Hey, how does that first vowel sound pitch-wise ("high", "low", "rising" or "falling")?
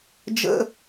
high